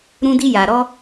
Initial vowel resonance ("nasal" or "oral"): nasal